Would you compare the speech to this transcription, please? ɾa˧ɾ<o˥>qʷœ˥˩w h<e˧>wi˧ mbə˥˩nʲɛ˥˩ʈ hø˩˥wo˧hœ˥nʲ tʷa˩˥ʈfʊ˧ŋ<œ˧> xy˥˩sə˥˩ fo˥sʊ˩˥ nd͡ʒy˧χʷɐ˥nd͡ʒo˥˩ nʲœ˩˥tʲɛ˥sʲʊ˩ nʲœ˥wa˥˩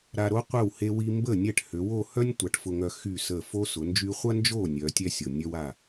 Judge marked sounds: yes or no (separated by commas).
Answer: yes, yes, yes